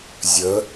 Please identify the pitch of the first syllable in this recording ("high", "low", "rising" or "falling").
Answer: rising